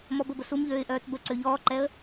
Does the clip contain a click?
yes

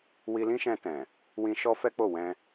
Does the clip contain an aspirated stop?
no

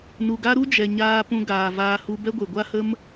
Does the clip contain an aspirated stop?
no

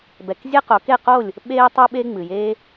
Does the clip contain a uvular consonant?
yes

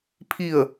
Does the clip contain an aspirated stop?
yes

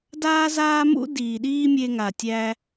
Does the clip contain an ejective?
no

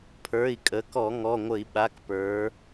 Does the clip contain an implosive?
yes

